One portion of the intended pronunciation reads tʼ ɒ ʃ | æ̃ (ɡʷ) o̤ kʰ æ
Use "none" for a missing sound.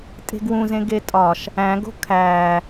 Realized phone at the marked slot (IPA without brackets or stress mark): ɡ